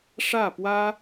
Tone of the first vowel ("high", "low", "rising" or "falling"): falling